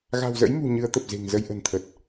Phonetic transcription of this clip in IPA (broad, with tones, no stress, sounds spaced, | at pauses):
ɣ a̤˨˩ w z ə̰˧˥ j m ṳ˨˩ ɲ ɨ˨˦ ə̯ t̪ ə˨˩ p̚ z e̤˨˩ ŋ z ə˧ j ʔ ə̤˨˩ n t̪ʰ ə˨˩ t̚